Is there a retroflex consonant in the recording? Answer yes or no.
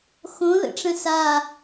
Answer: yes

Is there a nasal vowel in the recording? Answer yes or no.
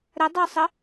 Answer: no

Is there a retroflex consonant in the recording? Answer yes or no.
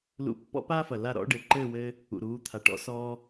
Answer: yes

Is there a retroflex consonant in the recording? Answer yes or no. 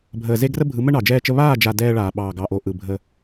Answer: yes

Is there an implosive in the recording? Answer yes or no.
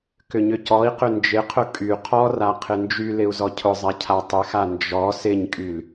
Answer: no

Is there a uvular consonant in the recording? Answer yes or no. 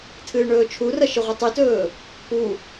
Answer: yes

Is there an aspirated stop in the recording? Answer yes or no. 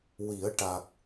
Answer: no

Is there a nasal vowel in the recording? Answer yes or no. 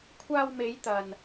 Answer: no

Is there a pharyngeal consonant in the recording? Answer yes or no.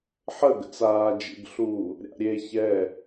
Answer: yes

